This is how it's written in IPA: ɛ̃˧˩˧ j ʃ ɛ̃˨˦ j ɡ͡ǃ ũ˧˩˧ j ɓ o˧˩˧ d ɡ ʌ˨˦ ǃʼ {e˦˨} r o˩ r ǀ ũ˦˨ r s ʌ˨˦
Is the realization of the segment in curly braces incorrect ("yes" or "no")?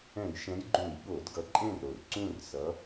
yes